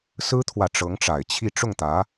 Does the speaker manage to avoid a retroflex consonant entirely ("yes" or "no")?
no